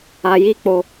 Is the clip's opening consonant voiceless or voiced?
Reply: voiced